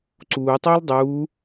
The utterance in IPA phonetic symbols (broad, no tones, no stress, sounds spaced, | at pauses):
ǀ uː tˤ ʏː l dˤ uː